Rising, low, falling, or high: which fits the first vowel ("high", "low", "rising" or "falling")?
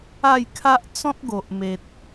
falling